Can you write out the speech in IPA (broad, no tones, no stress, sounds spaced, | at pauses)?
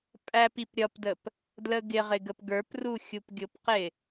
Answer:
pʼ æ p i p ɾʲ ʌ p d ə p | d l ə ɡ ɪ ʁ ɪ ɡ ə p ɡ ə˞ p r u xʲ u p ɡʲ ʊ p q ɪ